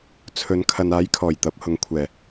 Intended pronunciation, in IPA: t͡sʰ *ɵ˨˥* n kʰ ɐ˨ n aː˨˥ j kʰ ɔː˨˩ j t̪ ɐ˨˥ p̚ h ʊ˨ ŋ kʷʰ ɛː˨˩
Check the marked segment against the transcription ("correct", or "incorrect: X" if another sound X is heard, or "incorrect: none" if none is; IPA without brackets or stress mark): correct